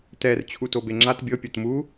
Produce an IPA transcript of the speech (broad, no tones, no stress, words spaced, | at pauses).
tɛr t͡ɕʰutobeŋ͡ǁat bʲɤ pʲɤtmu